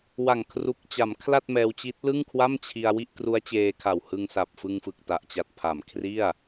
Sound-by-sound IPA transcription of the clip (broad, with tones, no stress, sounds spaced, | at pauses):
w a˨˩ ŋ kʰ r u˨˩ k̚ t͡ɕ a˩˦ m kʰ l a˥˩ t̚ m ɛː˧ w t͡ɕ i˦˥ t̚ l ɯ˥˩ ŋ kʰ w a˥˩ m t͡ɕʰ i˧ a̯ w i˥˩ ʔ k r u˦˥ a̯ t͡ɕ eː˧ kʰ a˨˩ w h ɯ˧ ŋ s a˨˩ p̚ f ɯ˧ ŋ f ɯ˨˩ k̚ t a˨˩ ʔ t͡ɕ a˨˩ t̚ pʰ a˨˩ m kʰ r i˥˩ a̯